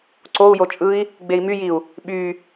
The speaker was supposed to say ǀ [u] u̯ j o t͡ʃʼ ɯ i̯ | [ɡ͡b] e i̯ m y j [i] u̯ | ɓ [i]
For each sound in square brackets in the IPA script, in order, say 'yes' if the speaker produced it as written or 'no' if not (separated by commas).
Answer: no, yes, yes, no